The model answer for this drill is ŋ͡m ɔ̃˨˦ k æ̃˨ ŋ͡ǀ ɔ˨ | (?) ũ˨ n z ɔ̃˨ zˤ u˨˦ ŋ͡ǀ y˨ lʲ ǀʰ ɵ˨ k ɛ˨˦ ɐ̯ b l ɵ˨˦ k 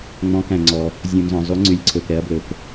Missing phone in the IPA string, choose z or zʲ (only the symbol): zʲ